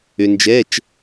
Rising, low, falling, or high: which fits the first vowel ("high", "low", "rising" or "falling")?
low